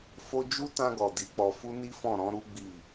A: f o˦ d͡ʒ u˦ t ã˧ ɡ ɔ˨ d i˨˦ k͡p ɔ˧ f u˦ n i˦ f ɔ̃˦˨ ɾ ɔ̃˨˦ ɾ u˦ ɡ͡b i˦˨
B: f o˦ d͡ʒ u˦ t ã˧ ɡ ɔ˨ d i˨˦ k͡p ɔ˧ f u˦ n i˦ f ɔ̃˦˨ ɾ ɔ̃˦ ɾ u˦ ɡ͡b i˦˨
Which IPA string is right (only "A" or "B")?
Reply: A